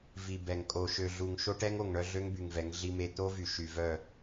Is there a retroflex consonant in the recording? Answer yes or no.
yes